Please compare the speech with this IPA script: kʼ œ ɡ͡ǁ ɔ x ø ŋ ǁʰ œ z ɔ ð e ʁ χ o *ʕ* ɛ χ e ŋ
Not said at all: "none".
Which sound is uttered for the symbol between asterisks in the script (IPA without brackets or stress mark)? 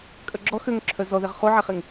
ʕ